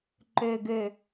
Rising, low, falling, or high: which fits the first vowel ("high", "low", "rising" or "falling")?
low